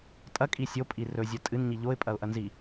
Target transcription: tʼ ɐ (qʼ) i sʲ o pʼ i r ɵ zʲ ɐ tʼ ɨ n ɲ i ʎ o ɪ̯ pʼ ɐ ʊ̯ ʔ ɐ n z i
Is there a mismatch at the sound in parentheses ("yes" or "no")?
yes